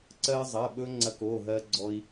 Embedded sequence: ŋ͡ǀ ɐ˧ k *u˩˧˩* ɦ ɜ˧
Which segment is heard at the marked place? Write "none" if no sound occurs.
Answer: o˩˧˩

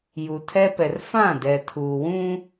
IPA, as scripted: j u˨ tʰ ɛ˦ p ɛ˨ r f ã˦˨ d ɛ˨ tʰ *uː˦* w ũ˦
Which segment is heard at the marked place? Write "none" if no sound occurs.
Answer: uː˨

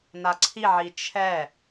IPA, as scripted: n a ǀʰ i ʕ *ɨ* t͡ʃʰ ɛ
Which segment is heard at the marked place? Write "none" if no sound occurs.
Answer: i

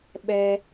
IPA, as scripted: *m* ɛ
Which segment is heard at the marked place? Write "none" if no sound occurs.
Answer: ɓ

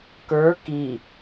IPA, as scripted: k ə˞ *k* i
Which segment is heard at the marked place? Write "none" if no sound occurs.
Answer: k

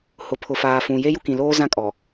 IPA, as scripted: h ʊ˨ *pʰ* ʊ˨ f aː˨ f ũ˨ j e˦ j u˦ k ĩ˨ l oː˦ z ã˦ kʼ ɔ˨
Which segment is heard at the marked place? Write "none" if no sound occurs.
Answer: pʰ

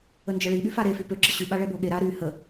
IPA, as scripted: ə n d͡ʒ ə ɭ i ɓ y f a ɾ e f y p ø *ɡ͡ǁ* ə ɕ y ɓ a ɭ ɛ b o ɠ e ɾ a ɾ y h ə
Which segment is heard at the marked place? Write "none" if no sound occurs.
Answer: ɡ͡ǁ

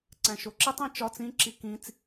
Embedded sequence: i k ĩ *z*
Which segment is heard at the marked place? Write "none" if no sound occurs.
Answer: t͡s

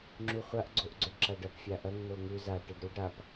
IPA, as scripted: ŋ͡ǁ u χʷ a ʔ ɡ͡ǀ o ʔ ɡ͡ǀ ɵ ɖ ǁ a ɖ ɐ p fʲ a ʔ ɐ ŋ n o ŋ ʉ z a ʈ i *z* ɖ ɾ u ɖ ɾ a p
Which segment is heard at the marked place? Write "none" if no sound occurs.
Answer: none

